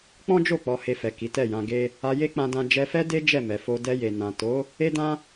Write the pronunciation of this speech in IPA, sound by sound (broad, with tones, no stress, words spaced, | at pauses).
k͡pɔ̃˦d͡ʒo˦˨ k͡pɔ˧he˧fɛ˨ ki˨˦tɛ˦˨jã˧ ɡe˦ | a˧je˦k͡pã˧dã˧ d͡ʒɛ˧fɛ˦de˦ d͡ʒɛ˦˨mɛ˨fo˧ dɛ˧je˨ nã˨ to˨˦ | e˦dã˦